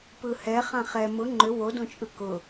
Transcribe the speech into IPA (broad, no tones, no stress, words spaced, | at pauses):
pɯhɛ χãχɛ mʊ ŋ͡ǃʏ wodõt͡ʃʼɯ kʊ